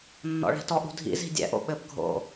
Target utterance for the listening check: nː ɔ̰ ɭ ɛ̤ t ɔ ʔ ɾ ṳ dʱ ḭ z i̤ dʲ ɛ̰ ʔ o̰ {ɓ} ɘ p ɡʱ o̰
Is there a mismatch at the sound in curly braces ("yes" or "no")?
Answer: no